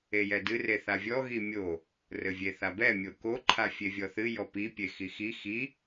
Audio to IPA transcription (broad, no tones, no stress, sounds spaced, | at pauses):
e j ɛ d ɨ r e θ a vʲ ɔ ɣ i mʲ o | r ɘ vʲ e θ a b ɛ mʲ o k o ǃʰ a fʲ e vʲ ɔ θ ɨ j ɔ p i pʲ e x i x i x i